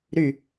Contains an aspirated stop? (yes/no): no